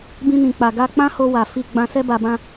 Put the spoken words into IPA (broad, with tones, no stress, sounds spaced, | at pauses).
b ĩ˧ n ĩ˨ k͡p a˨ ɡ a˧ k͡p ã˦ h o˧ w a˨ f i˧ ɡ͡b ã˧ s ɛ˦ b a˧ b ã˦